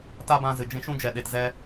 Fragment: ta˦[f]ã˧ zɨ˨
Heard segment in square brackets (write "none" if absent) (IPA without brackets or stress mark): b